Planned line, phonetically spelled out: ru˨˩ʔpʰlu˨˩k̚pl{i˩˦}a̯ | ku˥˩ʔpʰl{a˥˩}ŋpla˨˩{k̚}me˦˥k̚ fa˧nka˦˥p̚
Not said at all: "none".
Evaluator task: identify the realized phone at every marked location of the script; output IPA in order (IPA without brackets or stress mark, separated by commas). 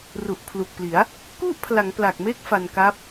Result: i˩˦, a˩˦, k̚